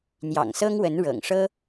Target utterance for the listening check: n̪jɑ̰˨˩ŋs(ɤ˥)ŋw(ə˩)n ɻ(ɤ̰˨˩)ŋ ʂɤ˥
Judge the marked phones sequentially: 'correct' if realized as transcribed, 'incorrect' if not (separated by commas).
correct, incorrect, correct